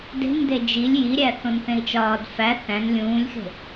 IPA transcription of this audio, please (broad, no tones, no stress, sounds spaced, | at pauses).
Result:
d e̤ n d e d͡ʒ i lʲ j i ɾʲ æ θ õ n θ ẽ i̯ t͡ʃ ɒː d f æ θ æ̃ n lʲ ũː lʲ x e̤